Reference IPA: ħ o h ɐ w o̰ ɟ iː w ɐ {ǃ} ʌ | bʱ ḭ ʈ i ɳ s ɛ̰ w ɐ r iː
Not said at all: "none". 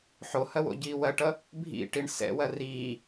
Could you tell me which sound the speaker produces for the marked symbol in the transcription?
ʈ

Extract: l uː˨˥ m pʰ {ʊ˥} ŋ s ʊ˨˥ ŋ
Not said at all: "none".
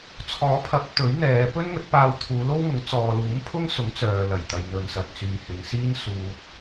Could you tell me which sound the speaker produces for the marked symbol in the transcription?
ʊ˥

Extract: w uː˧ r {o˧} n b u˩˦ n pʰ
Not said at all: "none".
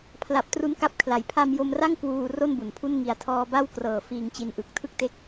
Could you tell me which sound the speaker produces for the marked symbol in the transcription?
o˥˩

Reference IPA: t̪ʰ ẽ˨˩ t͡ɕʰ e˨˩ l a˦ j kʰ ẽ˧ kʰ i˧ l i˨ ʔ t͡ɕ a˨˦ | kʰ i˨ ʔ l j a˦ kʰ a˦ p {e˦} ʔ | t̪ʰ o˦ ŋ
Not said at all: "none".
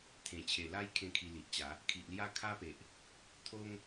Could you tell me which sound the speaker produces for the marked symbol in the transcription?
e˨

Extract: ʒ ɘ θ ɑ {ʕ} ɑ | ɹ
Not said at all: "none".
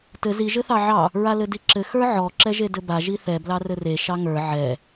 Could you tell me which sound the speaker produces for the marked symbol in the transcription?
ʕ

